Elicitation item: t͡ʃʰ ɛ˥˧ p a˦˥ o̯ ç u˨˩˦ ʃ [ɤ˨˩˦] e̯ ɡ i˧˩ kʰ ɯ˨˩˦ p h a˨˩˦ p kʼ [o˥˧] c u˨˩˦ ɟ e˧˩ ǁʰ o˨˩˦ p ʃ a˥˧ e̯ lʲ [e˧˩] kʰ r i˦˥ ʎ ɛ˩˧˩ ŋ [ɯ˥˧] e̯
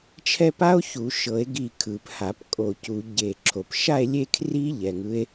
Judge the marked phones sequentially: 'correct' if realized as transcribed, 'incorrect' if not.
correct, incorrect: o˧˩, incorrect: e˥˧, incorrect: ɯ˦˥

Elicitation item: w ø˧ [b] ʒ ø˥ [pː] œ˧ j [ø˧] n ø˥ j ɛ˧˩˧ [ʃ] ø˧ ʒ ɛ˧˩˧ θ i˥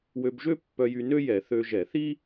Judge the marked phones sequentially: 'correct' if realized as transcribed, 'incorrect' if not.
correct, correct, incorrect: y˧, incorrect: θ

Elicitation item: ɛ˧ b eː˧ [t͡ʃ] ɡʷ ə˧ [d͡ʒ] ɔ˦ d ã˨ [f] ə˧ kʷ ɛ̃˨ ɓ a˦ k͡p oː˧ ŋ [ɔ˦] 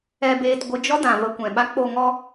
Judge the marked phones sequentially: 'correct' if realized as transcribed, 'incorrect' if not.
incorrect: t, correct, incorrect: v, correct

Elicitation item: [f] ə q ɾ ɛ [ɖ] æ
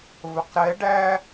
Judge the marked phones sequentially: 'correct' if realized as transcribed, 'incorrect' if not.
incorrect: v, correct

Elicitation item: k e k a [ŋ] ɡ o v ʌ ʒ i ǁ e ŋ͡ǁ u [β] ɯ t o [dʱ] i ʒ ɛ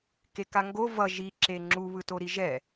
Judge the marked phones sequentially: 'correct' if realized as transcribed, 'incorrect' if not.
correct, correct, incorrect: ɾ

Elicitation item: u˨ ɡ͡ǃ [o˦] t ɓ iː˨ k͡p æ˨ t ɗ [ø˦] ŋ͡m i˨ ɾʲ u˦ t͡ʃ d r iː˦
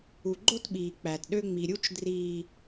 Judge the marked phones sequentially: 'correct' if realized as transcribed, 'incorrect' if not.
correct, correct

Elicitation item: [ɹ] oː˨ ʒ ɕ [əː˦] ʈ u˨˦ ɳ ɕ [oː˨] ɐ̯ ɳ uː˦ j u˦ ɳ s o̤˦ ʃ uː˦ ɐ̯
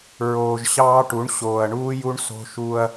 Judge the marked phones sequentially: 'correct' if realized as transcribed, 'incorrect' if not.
correct, incorrect: ɑː˦, correct

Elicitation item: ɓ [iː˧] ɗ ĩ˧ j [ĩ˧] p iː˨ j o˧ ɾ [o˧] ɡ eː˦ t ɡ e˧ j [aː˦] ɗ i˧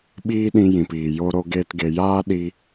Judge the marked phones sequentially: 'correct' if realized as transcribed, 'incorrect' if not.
incorrect: iː˦, incorrect: ĩ˨, correct, correct

